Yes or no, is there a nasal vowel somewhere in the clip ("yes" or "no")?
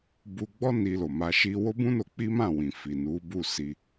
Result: yes